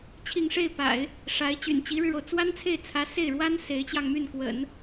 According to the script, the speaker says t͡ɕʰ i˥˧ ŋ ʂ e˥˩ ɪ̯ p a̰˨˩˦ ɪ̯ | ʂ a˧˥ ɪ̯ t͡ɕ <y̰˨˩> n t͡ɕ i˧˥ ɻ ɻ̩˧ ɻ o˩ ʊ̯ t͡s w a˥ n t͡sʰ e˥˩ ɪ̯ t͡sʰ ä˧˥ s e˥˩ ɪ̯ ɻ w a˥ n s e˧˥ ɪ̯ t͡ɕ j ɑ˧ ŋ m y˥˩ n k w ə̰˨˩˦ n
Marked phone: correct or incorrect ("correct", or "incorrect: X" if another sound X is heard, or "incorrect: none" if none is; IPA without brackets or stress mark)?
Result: correct